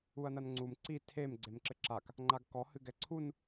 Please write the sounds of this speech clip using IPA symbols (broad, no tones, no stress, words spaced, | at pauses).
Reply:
uɐ̯nɐnŋ͡ǀum ǀi tʰem ɡ͡ǀemǁɘǁak | ŋ͡ǃaɡkɔ hɨɡɛǀʰun